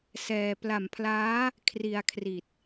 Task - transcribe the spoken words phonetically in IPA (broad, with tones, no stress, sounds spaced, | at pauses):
s ɛː˧ p l a˨˩ m pʰ l aː˦˥ | kʰ r i˧ a̯ kʰ r i˨˩ t̚